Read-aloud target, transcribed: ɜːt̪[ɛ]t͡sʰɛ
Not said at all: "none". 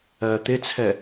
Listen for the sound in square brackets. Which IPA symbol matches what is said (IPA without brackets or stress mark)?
ɪ